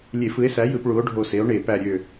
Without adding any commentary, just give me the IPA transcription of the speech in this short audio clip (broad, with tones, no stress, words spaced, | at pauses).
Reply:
lʲe˧˩˧f ɯ˩˥e̯sæ˩˥jɯ˧˩˧p ɭu˩˥o̯ɖʱo˧˩se˩˥o̯ ɳe˧˩˧pæ˧˩ɾʲø˧˩